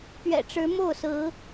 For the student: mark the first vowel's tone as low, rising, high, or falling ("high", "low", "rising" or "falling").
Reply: low